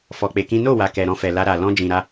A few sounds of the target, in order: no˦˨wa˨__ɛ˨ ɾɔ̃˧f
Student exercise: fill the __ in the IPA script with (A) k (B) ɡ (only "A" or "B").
A